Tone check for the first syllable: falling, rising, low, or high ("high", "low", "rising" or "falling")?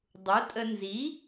rising